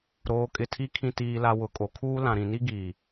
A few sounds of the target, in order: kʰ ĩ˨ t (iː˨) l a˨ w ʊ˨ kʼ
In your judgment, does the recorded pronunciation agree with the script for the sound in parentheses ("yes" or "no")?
yes